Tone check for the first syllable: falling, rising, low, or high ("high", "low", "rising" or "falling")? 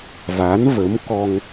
rising